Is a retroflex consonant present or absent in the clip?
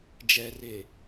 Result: absent